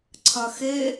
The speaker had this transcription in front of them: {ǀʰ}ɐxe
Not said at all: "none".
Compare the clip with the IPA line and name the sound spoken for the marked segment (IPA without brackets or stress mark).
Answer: ǀʰ